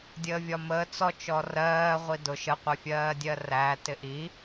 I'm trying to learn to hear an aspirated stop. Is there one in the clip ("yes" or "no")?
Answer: no